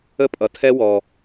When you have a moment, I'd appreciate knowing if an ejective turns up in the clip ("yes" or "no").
yes